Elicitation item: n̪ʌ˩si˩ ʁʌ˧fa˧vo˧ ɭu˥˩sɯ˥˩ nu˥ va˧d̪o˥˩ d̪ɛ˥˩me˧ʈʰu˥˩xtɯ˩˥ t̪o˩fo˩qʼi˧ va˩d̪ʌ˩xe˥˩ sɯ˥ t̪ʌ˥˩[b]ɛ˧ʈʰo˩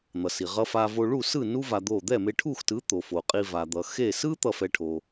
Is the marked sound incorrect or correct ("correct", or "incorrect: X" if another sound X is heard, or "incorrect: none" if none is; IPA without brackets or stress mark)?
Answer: incorrect: f